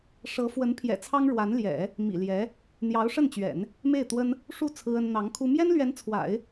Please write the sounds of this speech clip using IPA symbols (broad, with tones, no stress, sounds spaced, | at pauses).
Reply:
ʂ ɤ˧˥ f w ə˧˥ n pʰ j ɛ̰˨˩ t͡sʰ ɑ˥ ŋ ɻ w a˧˥ n l j ɛ̰˨˩˦ | m ḭ˨˩ l j ɛ˧˥ | n̪ j ɑ˧˥ ʊ̯ ʂ ə˥˩ n t͡ɕ ɥ ɛ̰˨˩˦ n | m e˥˩ ɪ̯ t̪ w ə˥ n | ʂ u˥˩ t͡sʰ ɹ̩˥ ə˥ n n̪ ɑ˧˥ ŋ kʰ u˥ m j ɛ˥ n l ɥ ɛ˧˥ n t͡sʰ w a̰˨˩˦ ɪ̯